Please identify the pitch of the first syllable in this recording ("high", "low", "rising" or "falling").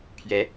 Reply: rising